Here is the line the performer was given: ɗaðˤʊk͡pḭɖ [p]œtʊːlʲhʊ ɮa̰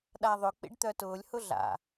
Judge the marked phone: incorrect: t̪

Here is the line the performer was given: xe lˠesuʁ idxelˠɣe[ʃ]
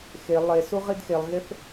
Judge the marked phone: incorrect: θ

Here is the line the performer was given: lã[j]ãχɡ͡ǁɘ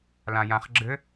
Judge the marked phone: correct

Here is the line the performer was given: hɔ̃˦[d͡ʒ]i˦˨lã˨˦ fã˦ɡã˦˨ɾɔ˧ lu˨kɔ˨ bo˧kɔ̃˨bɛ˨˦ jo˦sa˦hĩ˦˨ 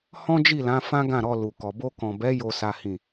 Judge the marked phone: correct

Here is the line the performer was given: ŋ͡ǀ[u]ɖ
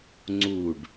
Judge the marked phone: correct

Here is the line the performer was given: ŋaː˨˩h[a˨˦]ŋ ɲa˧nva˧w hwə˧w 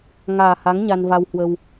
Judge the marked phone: correct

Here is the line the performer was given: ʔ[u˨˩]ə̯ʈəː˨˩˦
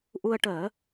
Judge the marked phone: incorrect: u˧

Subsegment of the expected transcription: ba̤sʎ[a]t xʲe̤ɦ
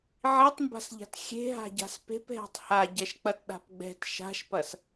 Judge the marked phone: incorrect: a̤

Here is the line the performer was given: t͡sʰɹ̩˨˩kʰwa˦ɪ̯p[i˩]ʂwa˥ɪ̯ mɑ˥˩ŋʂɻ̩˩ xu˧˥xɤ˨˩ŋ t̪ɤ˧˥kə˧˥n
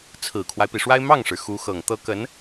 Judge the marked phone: correct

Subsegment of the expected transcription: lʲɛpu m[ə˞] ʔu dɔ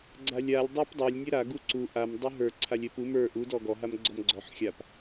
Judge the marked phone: correct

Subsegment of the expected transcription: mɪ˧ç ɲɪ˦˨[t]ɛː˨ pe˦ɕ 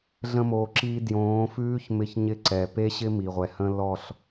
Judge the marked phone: incorrect: ǀ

